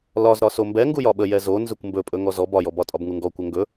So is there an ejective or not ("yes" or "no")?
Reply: yes